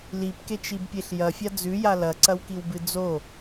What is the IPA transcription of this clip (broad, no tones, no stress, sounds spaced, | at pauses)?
l i p k e t͡ʃ i b pʲ e ɬ j ɐ fʲ a d͡z ʉ j a l ɐ ǀ ɐ w k i w b ɨ d͡z o